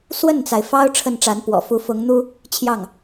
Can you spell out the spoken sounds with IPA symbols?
swə˥˩nt͡sa˩ɪ̯fɑ˥ʊ̯ ʈ͡ʂʰə˥˩nʈ͡ʂa˧˥npwɔ̰˨˩ fu˧˥fʊ˧˥ŋn̪u˥ | t͡ɕʰjɑ˥˩ŋ

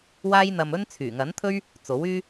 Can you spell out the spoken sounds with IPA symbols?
waː˥jn̪ɐ˧mɵ˥n t͡sʰyː˨˩ŋɐ˨˥nt̪ʰɵ˥ɥ | t͡so˨˥w yː˥

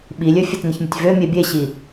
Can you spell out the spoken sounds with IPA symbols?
ɓilʲø fʲetnəçmʲətʲvø mʲebʲeɕi

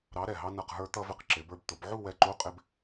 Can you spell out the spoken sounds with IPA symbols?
ɾɑ˧˥ɾɛ˧˩ ɦɑ˧nʌ˧˩qɦə˞˧ t̪ʌ˧vɪ˧q ǁɪ˩˧bə˞˧b t̪ʊ˩˧bʕu˥˧wɛ˧˩ ǃu˧˥qʼɪ˧b

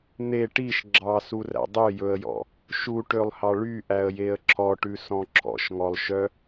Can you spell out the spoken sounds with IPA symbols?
n̪e ʈiʃ ɡ͡ǁɑsuræ̰ dˤøjɵə̯jɔ̰ | ʃuʈølˠhɑ ɭyʔæə̯jeə̯ ǁʰɔʈʉsɔ̃ ǁʰɔ̰ʃŋɔlˠʃœ

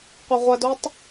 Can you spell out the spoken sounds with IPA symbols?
qʷɐʁʷɐdotˤ

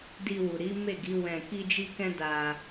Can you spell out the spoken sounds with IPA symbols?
di˧wu˨ɾi˨˦ me˦˨ɡi˨˦wɛ̃˧ ki˦d͡ʒi˦ kɛ̃˦da˧

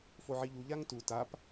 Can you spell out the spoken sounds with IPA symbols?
foʕiʎu ʎaŋtu tap

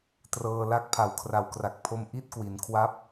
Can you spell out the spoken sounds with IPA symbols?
trɤː˧la˦˥k̚pʰa˨˩w kʰra˨˩wkra˨˩k̚ pʰo˥˩m ʔi˥˩t̚kwi˩˦nkʰwa˦˥p̚

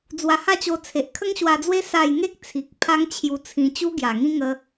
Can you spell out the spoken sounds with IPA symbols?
d͡zwa˧ha˥˧t͡ɕo˧ t͡sʰe˨ʔkʰə˦ŋɕwa˧d͡zwe˦ sa˥˧j ŋe˦k̚t͡sʰi˨k̚ pʰa˦ŋt͡ɕʰju˧t͡sʰĩ˧ t͡ɕu˦ɡja˨˩ŋĩ˦ŋə˧

